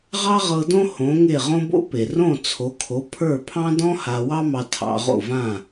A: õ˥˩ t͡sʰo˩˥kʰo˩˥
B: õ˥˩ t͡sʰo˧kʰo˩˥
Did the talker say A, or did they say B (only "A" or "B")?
A